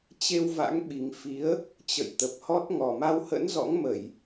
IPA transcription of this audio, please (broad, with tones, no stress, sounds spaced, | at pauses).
t͡ɕ e˧ w v a̰˧˥ ŋ ɓ i˨˩ ŋ f i˨˦ ə̯ | t͡ɕ ə̰˧˨ j t̪ ə˨˩ p̚ h ɔ˦˥ t̚ ŋ ɔ˨˩ m a˧ w h ə̰˧˥ n z ɔ̰˧˥ ŋ m ə˧˩˨ j